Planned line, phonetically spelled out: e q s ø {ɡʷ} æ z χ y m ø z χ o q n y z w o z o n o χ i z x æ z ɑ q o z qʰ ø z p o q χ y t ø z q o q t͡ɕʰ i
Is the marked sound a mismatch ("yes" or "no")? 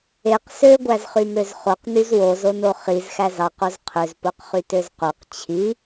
no